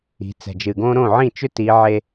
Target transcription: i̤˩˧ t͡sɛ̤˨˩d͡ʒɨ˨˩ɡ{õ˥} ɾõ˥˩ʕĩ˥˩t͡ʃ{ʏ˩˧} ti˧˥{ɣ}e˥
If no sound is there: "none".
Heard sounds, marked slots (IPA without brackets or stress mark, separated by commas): õ˥, ʏ˥, ʕ